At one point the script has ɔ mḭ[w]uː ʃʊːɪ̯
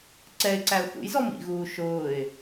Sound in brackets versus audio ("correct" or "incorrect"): incorrect